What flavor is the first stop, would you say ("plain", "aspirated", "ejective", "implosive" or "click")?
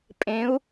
ejective